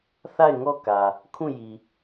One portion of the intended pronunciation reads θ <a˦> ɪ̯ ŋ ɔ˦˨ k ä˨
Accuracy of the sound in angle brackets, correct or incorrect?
incorrect